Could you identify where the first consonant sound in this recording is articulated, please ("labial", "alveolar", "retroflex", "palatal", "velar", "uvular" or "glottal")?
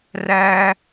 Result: alveolar